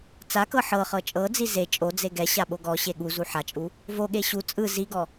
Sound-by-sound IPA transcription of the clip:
t͡s a k ɤ ħ ɤ χ ɤ t͡ʃʼ ɤ d͡z i z e t͡ʃʼ o d͡z e ɡ ɛ ɕ a ɓ o ɡ ɔ ɕ e ɠ u z u ħ a t͡ʃʼ u | v o ɠ e ɕ u t͡sʼ ɯ z i ɡ ɔ

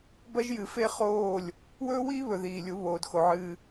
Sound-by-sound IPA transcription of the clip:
b ɐ˦ ʒ j ɨ˨ f e˦ χ oː˦˨ lʲ | w ɵː˦ w iː˦ β ɵ˨ ð iː˨ lʲ u˨˦ β oː˨ d x o˨ ʕ ɨː˦

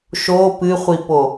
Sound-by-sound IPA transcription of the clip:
ʃ o p ɨ χʷ i p o

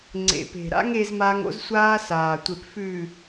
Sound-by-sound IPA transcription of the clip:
ŋ͡ǀ ḛ˨ p e̤˨ ɾ a̰˦ ŋ e˦ z m a˦ ŋ o̰˦ z sʷ aː˦ s aː˨ tʷ e˨ p f ʉː˨

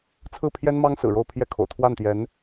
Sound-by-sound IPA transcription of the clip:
t͡sʰ ɹ̩˥˩ pʰ j ɛ˥ n m ɑ˥ ŋ s ɹ̩˨˩ ɻ o˥˧ ʊ̯ pʰ j ɛ˥˩ kʰ o̰˨˩ ʊ̯ t̪ʰ w a˥˩ n t̪ j ɛ˧˥ n

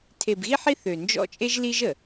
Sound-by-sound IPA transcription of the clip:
tʰ e˨ b ɣ i˦ ħ i˦ θ ø˨ n d͡ʒ ɔ̰˦ t͡ʃʼ e˦ ʒ l i˦ ʒ ə˨

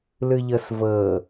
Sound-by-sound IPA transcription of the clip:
l ɯ ʎ ɤ s v ɤ

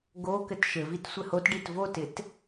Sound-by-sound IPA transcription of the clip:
ɡ o k ɘ t ʃ ɘ v i t sʷ ɘ h o t ɖ i t v o t ɪ t

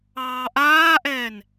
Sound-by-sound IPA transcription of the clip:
ɑː ʔ aː ʔ ɛː n

